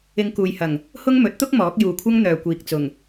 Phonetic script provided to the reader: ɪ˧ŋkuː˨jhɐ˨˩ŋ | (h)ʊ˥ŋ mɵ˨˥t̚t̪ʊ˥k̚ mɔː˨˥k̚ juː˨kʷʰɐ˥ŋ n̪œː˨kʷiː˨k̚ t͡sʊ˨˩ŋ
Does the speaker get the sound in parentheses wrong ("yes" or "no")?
no